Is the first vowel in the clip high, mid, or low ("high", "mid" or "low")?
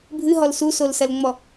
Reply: high